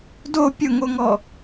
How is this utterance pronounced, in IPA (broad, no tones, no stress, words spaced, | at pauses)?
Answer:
do pʲʊŋoŋɔ